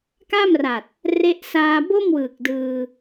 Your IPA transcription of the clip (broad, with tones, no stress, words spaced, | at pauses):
ka˥˩mra˨˩t̚ | re˦˥ʔ saː˧bo˥˩mwɯː˨˩k̚ dɯː˧